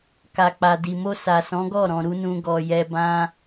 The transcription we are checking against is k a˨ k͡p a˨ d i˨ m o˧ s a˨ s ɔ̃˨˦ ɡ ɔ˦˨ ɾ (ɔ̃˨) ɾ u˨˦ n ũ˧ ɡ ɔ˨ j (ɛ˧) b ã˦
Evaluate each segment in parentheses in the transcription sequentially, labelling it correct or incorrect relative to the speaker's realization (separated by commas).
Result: correct, correct